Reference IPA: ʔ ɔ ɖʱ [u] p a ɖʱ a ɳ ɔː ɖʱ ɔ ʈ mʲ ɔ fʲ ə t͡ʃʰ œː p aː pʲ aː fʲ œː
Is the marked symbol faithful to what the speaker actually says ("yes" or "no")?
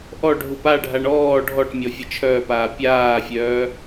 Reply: yes